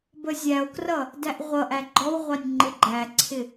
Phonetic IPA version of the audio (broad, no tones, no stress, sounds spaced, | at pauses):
b ə zʲ æ o̯ k r ʌ | d æ ʔ ʁʷ ʌ ʔ æ ɡ͡ǃ ɔ w ʁʷ ɑ nʲ ŋ͡ǃ ɪ ɡ͡ǃ æ ǀʰ ɪ